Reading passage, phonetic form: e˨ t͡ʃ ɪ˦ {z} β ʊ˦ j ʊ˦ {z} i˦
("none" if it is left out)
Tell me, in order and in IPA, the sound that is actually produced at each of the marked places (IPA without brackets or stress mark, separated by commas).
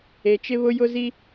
none, z